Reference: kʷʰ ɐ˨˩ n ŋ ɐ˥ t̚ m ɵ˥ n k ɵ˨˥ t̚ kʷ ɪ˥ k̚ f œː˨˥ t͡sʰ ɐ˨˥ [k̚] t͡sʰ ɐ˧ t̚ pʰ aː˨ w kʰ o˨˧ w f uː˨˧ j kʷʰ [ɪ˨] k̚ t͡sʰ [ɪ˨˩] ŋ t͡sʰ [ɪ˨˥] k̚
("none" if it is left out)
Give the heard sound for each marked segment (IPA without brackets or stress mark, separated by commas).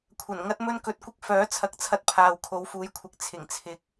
k̚, ɪ˨, ɪ˨˩, ɪ˨˥